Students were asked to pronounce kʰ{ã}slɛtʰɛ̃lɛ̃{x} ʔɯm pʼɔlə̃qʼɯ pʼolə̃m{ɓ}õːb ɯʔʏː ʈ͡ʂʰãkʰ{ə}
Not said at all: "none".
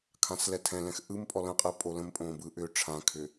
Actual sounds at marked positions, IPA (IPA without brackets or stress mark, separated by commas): ã, x, pʼ, ʏ